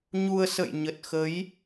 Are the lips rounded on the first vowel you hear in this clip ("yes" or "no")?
yes